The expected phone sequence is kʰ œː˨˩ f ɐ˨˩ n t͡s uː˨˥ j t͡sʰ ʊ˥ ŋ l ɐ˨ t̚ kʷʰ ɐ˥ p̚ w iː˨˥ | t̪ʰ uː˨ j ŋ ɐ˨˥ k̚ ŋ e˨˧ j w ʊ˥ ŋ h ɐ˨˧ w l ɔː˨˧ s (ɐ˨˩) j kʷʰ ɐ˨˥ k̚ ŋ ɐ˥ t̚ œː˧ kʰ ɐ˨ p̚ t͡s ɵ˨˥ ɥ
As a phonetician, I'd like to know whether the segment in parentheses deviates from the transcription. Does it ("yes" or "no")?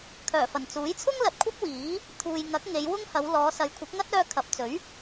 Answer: yes